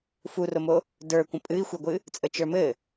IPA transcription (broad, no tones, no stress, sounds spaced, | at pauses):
f u r o m o | d ə˞ kʷ ə̃ pʼ ɨ i̯ xʷ ɛ ɡʷ ɨ | t͡sʼ ə t͡ʃ ə˞ m ɘ